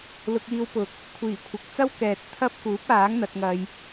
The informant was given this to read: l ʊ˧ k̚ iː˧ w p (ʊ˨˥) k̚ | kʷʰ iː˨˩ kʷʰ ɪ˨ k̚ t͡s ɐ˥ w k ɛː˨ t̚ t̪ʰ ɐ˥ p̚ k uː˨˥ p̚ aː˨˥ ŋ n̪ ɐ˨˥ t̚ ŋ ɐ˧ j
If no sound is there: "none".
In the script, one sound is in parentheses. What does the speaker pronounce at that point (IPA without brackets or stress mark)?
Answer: ʊ˨˥